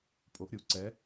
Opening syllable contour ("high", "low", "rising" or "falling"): rising